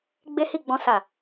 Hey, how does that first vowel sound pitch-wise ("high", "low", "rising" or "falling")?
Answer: high